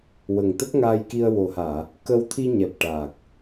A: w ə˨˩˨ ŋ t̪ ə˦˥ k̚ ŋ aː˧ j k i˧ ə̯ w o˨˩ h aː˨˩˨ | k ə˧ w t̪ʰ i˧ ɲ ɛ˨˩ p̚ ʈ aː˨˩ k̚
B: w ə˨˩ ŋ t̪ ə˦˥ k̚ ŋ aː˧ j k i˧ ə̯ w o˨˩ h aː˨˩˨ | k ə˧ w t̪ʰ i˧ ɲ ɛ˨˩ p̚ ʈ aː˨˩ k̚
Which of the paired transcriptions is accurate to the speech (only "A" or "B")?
B